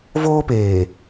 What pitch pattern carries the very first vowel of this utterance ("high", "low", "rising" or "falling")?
high